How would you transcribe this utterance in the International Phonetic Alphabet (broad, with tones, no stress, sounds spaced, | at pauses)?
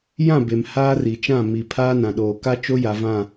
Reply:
j ã˦˨ b e˨ m h aː˦ r i˨ t͡ʃ ã˦˨ m i˨ pʰ aː˦ n ã˨ ɗ oː˨ k a˦ t͡ʃ o˦ j a˨ v ã˦˨